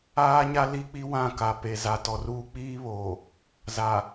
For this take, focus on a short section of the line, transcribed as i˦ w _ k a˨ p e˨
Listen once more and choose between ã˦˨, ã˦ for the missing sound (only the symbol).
ã˦˨